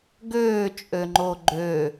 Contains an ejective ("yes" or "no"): yes